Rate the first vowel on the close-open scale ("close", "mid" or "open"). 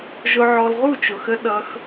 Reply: close